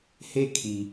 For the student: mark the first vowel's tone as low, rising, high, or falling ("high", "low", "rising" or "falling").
falling